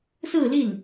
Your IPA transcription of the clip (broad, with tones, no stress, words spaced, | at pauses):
sɹ̩˥˧li˥˩n